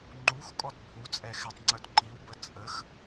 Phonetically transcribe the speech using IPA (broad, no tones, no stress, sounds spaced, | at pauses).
ŋ͡ǃ u x kʼ ɔ d bʱ u t͡sʼ ɛ x ɛ tˤ ŋ͡ǀ œ d ǃ i w b ə t͡sʼ ə x